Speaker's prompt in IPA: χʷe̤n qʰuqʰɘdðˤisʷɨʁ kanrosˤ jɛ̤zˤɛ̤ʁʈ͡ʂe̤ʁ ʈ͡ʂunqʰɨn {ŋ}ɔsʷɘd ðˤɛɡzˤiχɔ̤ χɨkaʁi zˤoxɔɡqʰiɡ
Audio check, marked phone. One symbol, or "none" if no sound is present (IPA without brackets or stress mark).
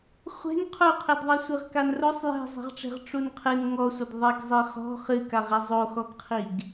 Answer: ŋ